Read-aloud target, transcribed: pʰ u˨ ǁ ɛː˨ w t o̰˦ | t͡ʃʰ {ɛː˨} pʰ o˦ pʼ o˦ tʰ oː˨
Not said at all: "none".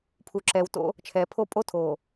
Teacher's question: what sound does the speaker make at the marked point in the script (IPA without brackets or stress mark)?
ɛː˨